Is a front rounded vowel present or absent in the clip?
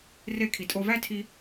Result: absent